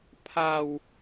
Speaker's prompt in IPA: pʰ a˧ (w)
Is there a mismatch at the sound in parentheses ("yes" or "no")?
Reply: no